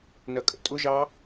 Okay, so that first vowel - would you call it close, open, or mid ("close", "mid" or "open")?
open